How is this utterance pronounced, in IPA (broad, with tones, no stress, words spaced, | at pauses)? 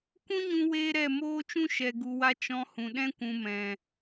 kʷũ˦ɲũ˧ weː˦ɾɛ˦˨ moː˦t͡ʃũ˦ ʃɛ˨ɡu˨wa˧ t͡ʃɔ̃˧hũ˨ɗɛ̃˦ kʷũ˨mɛ̃˨